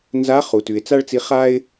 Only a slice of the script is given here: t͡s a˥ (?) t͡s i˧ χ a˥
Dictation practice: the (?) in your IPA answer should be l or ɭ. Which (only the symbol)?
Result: ɭ